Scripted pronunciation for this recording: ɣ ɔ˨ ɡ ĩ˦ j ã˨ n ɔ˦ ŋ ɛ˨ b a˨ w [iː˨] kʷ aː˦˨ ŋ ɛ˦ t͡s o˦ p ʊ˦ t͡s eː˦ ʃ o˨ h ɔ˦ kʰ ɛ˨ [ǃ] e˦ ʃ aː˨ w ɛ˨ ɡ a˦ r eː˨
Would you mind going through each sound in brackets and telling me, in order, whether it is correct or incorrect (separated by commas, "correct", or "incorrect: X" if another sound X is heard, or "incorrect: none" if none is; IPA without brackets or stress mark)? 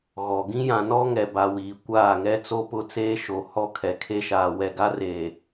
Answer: correct, incorrect: kʰ